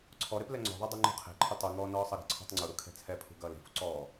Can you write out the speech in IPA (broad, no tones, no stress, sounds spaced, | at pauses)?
ǀʰ ɔ ɾ e p l ɛ ŋ͡ǀ ɔ̤ ðˤ e dˤ e ŋ͡ǃ ṳ qʰ e̤ ǃʰ ʊ tˤ u ŋ ɔː n ɔː sˤ ʌ ɾ ɛ̤ ǀʰ ɔ̤ tˤ ŋ͡ǀ u ɾ u kʰ ɛ̤ t͡sʰ ɛ pʰ ṳ ɡ ʌː l e̤ f ṳ ǀ ɔː